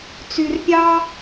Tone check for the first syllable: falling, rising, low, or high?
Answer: low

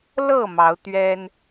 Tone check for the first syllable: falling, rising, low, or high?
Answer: falling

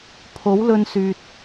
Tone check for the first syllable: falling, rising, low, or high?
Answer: rising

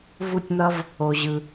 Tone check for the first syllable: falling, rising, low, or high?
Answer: falling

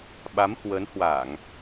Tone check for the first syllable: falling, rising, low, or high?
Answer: rising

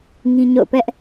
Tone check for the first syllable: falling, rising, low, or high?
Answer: high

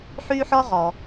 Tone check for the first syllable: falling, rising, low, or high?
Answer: high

